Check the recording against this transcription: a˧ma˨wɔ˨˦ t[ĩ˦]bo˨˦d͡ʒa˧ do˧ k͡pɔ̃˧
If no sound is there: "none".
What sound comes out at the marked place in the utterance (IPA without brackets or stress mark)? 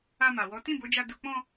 ĩ˦˨